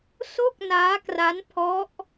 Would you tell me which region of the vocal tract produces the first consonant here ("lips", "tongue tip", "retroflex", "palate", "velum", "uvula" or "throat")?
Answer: tongue tip